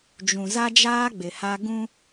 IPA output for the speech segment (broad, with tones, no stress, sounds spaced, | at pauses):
d͡ʒ ũ˨ z a˦ d͡ʒ aː˦ ɡ͡b ɪ˨ h a˦ ɡ ũ˦